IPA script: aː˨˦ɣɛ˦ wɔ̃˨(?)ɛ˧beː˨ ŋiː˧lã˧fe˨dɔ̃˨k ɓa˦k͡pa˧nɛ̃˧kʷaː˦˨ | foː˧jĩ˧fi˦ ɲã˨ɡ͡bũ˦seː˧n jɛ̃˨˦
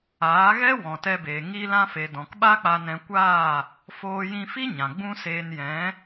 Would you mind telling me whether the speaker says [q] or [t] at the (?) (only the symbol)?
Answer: t